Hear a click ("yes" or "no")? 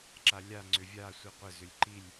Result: yes